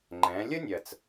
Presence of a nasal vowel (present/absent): present